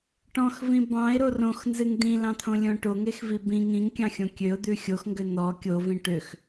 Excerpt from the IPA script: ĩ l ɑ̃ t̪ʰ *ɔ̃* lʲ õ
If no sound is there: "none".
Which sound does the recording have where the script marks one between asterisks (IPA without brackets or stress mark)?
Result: õ